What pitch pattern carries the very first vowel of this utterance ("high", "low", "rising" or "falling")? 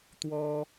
high